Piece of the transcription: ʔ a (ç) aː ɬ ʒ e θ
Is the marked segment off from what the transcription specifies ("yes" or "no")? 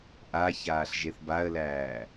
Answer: no